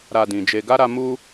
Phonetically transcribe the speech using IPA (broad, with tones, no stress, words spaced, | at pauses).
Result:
ɾa˧dĩ˨d͡ʒe˧ ɡa˦ɾa˧ mu˦